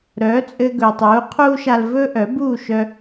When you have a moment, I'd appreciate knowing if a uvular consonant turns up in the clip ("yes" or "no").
yes